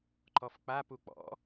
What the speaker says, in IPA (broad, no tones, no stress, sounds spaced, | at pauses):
ǃ ɔ f k͡p a p u k͡p ɔ̰